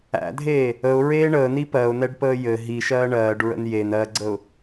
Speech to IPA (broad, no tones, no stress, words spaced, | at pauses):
æ̰dʱeː | əʊ̯ɹeː ɳəːni pɜʊ̯nɛɖpəː jɘ ɦiʃɜː ɳɜːɖɹə̰n jen ɜɡ͡ǀəʊ̯